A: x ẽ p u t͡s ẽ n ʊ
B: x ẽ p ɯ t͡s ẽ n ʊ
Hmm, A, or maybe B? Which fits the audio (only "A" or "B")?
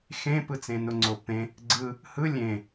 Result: B